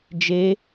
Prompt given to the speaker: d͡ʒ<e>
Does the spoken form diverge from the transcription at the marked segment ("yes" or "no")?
no